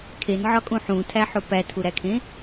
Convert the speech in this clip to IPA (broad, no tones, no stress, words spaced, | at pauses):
kʰenʕɒkʼũ ħũtʰæħo pætʰuɾækʰẽ